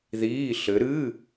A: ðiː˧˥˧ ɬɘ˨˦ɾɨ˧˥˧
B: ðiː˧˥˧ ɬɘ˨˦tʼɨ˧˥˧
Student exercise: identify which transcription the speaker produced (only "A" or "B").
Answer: A